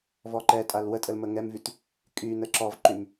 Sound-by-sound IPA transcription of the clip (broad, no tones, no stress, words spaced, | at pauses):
vɔǃɛ tʼalwətʼəl məŋɛmvyt | kʼy nəǁɔvǃym